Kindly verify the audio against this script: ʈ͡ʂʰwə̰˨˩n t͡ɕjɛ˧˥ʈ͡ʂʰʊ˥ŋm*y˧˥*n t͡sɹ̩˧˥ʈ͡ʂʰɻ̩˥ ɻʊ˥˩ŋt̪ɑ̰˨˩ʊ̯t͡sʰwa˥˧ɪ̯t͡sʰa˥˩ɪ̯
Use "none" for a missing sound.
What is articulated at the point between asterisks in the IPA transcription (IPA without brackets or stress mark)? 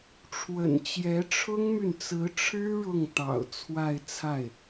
y˨